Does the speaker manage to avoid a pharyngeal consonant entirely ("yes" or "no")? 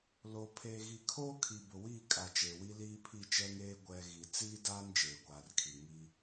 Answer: yes